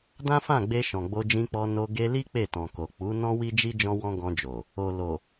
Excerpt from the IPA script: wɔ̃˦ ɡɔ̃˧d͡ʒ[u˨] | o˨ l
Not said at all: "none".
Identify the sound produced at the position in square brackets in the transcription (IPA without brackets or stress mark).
o˨